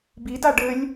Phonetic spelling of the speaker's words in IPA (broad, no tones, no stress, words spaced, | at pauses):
bida ɖɘlʲ